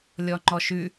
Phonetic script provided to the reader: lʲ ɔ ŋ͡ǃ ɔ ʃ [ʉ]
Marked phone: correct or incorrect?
correct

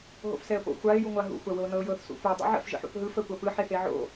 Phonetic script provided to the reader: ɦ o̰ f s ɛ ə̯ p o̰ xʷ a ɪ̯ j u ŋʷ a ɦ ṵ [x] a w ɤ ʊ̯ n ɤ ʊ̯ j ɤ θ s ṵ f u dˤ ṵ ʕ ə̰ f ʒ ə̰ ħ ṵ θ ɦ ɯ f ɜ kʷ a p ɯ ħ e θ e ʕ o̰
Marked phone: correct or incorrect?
incorrect: xʷ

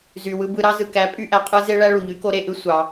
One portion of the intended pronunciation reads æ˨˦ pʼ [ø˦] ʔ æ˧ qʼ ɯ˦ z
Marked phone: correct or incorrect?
incorrect: y˦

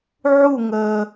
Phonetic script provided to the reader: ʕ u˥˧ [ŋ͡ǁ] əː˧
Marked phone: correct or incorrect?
incorrect: ŋ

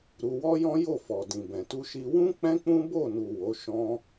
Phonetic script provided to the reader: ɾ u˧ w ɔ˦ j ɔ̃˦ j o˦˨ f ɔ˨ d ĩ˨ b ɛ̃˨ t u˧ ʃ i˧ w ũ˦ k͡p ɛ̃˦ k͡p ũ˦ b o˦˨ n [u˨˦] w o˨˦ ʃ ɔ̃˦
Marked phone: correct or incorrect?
incorrect: u˨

